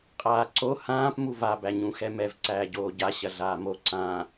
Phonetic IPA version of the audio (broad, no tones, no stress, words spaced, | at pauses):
qʼaːǀo hãːp muva bæɲũxɛmɛv ǀæːɟoːɟa ɕɐɮaːmo ǀã